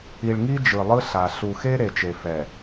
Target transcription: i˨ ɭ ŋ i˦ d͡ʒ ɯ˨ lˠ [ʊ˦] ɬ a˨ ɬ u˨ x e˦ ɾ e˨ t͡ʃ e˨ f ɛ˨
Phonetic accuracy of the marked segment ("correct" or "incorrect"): incorrect